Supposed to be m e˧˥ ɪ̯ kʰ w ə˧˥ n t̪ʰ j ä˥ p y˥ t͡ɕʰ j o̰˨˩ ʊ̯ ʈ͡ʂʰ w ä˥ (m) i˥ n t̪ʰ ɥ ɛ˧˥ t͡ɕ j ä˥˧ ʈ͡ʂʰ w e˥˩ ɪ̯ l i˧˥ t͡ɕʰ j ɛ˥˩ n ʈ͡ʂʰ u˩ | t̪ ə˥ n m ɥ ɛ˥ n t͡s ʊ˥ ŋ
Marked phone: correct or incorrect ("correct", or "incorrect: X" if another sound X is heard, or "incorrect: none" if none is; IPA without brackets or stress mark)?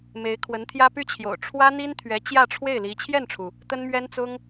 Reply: incorrect: n̪